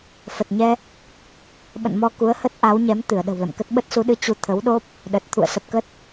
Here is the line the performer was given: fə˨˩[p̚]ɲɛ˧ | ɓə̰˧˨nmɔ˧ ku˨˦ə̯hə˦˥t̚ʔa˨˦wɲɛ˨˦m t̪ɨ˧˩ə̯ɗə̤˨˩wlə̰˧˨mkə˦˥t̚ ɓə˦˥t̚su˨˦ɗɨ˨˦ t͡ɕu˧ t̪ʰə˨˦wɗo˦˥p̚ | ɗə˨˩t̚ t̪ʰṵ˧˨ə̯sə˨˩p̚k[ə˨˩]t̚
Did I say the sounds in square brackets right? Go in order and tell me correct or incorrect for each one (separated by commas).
incorrect, incorrect